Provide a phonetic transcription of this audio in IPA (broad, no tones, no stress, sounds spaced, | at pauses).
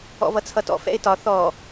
ɔ̰ v ʌ t͡sʰ ʌ t ɔ̰ f ɛ̰ ɪ̯ t ɒ θ ɔ